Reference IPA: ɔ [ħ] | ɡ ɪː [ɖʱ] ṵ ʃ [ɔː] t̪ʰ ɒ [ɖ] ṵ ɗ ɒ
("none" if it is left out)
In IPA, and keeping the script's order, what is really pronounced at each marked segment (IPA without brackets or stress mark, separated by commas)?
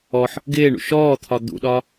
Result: ħ, ɳ, ɔː, d̪